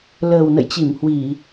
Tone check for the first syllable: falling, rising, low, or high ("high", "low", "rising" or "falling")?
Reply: low